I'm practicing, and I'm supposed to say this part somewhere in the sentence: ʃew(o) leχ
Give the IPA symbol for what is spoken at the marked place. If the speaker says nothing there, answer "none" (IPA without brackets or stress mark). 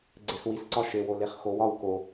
o